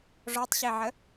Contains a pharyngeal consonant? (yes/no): yes